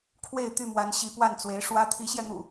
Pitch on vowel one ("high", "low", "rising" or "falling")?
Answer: falling